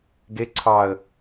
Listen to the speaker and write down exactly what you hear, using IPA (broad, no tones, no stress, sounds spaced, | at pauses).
ɡ e ǀʰ ɑ ə̯